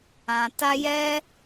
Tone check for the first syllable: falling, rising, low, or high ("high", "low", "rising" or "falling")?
low